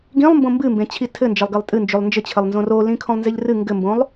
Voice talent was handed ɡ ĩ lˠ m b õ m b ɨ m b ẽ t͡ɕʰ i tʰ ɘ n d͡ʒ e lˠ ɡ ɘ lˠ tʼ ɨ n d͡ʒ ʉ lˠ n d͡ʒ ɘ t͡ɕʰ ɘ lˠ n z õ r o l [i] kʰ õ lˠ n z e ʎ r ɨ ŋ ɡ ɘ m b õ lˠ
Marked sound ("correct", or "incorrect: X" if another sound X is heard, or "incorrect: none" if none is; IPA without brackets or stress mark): incorrect: ĩ